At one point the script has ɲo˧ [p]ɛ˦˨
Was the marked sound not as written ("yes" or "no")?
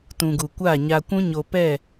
no